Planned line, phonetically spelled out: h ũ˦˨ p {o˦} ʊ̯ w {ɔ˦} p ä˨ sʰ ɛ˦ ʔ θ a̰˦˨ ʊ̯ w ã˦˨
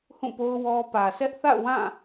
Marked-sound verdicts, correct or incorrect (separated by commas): correct, correct